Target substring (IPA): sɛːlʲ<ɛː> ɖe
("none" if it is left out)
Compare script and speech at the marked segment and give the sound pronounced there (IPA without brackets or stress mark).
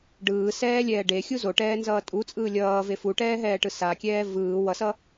ɛː